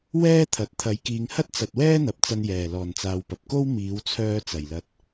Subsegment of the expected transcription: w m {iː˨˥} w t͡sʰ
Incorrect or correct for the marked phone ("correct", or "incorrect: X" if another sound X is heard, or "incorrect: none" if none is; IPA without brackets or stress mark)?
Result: correct